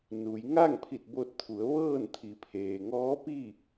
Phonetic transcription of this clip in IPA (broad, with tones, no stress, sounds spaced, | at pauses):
n u˩˧ j ŋ a˥˨ ŋ pʰ i˧˩ t̚ b o˧ t̚ t̪ʰ u˩˧ ə̯ ʋ ɤː˥˨ n t̪ʰ i˩˧ pʰ eː˩ ŋ ɔː˧˥ p i˥˨